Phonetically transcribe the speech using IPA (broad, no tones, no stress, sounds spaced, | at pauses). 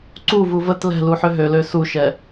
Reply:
ǀ u v u v ə t l ɛ̤ l u ħ ø ɦ ø l ø s u ʃ ɛ